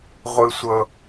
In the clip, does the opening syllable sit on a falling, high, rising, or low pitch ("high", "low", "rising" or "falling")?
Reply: high